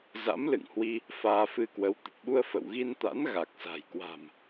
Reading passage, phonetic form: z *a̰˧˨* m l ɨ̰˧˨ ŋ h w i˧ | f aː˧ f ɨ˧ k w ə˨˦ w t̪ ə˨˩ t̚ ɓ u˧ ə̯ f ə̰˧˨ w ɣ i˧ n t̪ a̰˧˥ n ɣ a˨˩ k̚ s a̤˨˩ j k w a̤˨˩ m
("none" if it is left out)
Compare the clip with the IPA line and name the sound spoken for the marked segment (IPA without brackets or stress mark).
a̰˧˥